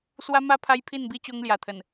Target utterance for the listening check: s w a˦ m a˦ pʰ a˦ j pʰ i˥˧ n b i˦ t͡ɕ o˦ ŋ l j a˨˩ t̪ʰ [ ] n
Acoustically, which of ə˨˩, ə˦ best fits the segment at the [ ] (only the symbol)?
ə˨˩